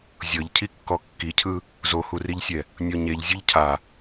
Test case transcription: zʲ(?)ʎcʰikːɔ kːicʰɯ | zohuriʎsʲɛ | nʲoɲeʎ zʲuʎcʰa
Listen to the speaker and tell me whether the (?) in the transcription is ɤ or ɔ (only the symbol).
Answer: ɤ